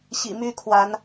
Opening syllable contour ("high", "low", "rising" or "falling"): low